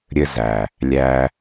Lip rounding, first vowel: unrounded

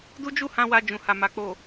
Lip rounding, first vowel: rounded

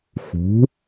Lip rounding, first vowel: rounded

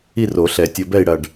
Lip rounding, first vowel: unrounded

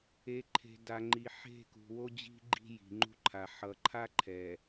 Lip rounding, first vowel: unrounded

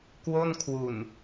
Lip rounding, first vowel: rounded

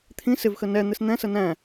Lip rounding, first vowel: unrounded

